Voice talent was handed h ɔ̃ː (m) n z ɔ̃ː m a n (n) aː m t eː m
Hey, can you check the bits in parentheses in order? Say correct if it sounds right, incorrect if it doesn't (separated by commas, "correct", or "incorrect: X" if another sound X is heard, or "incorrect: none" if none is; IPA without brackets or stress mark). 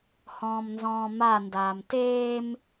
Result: correct, incorrect: d